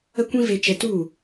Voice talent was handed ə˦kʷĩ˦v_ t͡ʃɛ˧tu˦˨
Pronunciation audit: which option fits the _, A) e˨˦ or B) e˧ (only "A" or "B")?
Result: B